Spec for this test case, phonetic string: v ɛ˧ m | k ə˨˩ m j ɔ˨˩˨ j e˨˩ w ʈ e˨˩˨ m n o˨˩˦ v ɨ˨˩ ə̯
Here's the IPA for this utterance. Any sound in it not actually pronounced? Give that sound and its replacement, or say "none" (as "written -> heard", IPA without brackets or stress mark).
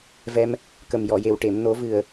none